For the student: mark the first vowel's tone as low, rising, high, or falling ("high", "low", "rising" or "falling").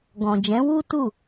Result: low